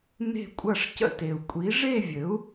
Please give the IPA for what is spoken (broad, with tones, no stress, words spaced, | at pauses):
me̤˥˨kʷʼɐ˥˨ʂ cə̰˥˨te˨˩u̯ kʷʼi˩˥ʐe˥˨vʲɘ˩˥u̯